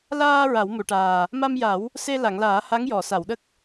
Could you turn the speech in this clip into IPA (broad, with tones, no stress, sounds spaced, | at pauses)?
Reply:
l aː˧ ɹ a˨˩˦ w m u˨˩˨ ʈ aː˨˩ | m a˧ m j a˨˩˦ w | s e˧ l a˨˩˨ ŋ l aː˨˩˦ h a˧˥ ŋ j ɔ˨˩˨ s a˨˩˨ w ɗ ə˦˥ k̚